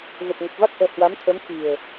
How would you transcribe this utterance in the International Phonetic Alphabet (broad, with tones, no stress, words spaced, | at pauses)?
ɣə˨˩p̚ŋə˨˩p̚va˦˥k̚ʔɛ̤˨˩ hwa˨˦mt̪ʰə˨˦mxi̤˨˩ə̯